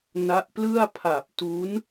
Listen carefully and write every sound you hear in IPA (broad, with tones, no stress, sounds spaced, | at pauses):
n a˦˥ ʔ p l ɯ˥˩ a̯ pʰ a˨˩ p̚ t u˦˥ n